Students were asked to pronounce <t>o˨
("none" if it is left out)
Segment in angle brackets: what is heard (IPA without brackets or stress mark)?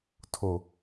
tʰ